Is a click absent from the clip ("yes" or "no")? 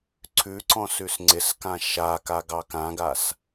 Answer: no